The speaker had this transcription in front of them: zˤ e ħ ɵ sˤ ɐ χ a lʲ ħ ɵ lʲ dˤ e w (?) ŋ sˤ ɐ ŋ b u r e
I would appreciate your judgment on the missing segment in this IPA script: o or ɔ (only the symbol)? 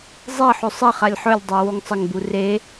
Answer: o